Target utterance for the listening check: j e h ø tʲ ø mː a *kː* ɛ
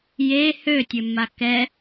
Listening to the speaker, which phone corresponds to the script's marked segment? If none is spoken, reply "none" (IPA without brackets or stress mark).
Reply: k